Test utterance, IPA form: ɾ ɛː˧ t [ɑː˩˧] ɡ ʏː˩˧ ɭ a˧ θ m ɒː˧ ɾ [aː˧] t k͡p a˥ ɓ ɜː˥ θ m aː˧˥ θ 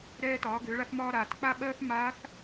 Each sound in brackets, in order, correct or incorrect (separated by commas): incorrect, incorrect